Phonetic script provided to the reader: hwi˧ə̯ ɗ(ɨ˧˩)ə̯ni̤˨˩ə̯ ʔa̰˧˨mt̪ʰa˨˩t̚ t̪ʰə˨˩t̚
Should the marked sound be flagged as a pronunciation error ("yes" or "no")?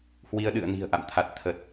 yes